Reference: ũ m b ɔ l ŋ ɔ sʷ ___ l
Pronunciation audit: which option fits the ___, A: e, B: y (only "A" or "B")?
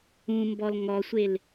A